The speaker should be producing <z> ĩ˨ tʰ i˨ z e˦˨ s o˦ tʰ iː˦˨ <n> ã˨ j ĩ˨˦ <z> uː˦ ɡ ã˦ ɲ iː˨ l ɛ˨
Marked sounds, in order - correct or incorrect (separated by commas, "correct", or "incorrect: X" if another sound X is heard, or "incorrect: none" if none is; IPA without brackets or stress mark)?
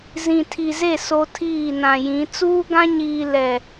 correct, correct, incorrect: t͡s